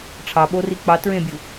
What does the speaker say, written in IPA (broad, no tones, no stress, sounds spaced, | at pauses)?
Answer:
ʈ͡ʂʰ ɑ ɓ o r i k͡p ɑ t ɹ ẽ bʲ u